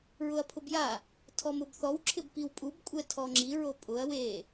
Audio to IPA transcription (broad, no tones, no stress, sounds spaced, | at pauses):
ɹ ʊ ɐ̯ pʰ ʊ b j a | tʰ ɔ m ʊ b θ ɔ w ǁʰ ɪ b p i w pʼ u b kʷʼ ɛ tʰ ɔ ŋ͡ǁ i ɹ o pʼ ʊ ɐ̯ w e